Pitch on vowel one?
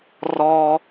high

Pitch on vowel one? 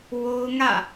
high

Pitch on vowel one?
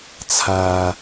low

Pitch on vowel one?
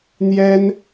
high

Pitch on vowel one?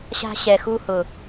high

